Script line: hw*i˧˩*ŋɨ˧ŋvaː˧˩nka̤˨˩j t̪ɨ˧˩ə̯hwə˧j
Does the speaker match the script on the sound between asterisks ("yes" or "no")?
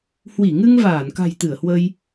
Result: yes